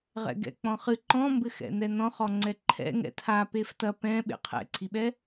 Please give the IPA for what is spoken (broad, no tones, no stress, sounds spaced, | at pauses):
ʁ ɛ̰ ɡ ɛ̰ k͡p ɔ̃ χ ɨ ǃ ɔ̃ m b ɘ x ɛ̰ n ɛ n ɔ̃ χ ɔ ŋ͡ǀ ɛ ǃʰ ɛ̰ ŋ ɛ̰ tʰ a p e f t ɐ p ɛ̃ ɓ ḛ qʰ ɛ̰ ǀʰ i ɓ ɛ